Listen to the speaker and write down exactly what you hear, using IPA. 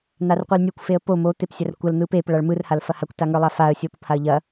n̪ a r qʷ ɯ l nʲ ɯ kʷ f e ə̯ p o m o t̪ e p sʲ ɐ r kʷ ɐ l n̪ ɯ p e p ɭ a ɭ m ɯ r h a l f ɐ h a kʷ t a ŋ ə˞ lˠ a f a ə̯ sʲ o p o p h a ə̯ ʎ ɐ

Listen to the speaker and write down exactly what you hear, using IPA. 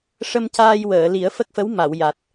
ʂ ə˧ m c aː˧ j w əː˨˩˨ l i˨˩˦ ə̯ f ə˦˥ k̚ f ə˧˥ w m a˨˩˨ w j a˨˩ t̚

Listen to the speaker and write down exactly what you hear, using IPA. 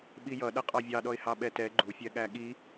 ɓ i j ʌ ɗ ʌ qʼ ɑ vʲ ɑ ɗ ɔ ɪ̯ h ɑ ɓ ɛ t ɛ ɡ͡ǃ u fʲ ɛ ɠ æ ɠ i

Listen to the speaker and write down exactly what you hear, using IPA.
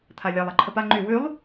t̪ʰ a lʲ a lˠ a ǃʰ ə p a ŋ͡ǃ y w y lˠ

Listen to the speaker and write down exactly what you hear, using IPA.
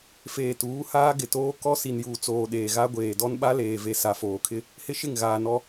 f eː˨ t uː˨˦ h aː˦ ɡ ɪ˨ t oː˦ k ɔ˦ s i˨ n j uː˨ t͡s oː˨ ɗ eː˨ ɣ a˦ ɡʷ eː˨ d ɔ˦ n ɓ a˦ l eː˨ v e˨ s a˨ f oː˨ kʰ ɪ˦ | h ɪ˦ ʃ ɪ˦˨ ŋ ɣ aː˨ n ɔ˦

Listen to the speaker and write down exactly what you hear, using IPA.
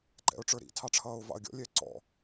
ǃ ɛ̰ ʊ̯ ʈ͡ʂ ə˞ ɾ ḭ tʰ ɑ ʈ͡ʂʰ ʌː ʊ̯ v ɑ̰ ə̯ ɡʲ ɔ̰ lʲ ɛ ǀ ɔ̰

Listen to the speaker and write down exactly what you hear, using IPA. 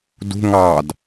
d ṳ ŋ ɑ d

